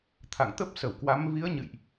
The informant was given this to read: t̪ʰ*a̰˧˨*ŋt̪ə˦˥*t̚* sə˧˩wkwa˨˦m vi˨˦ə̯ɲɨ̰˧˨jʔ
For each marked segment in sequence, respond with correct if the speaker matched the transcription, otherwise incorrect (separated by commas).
correct, incorrect